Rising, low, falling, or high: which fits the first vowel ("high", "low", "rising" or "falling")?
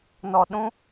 low